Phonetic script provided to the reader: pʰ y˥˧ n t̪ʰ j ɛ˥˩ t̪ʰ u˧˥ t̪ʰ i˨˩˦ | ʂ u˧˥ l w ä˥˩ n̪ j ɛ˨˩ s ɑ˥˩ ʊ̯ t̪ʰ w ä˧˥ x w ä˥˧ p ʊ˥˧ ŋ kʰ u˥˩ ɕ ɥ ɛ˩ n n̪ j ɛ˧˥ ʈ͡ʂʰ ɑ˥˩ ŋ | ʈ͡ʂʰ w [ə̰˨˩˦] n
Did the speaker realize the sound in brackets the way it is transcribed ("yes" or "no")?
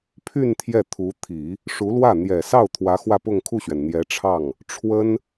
no